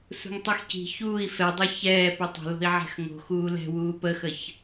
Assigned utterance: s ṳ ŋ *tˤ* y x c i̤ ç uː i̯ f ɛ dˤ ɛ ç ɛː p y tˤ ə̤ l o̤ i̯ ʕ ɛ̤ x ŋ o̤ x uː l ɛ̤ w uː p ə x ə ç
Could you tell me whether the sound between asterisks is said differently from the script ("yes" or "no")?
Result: no